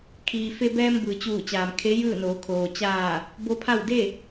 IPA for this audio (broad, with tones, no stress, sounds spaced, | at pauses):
kʰ iː˩ f e˧ b ɛː˧ m b ɯː˩ t͡ɕ uː˧˩ t͡ɕ aː˩ m kʰ e˧˥ j ɯː˥˨ n oː˩˧ kʰ oː˩ t͡ɕ aː˧˩ | b o˧˥ pʰ a˥˨ w d e˥˨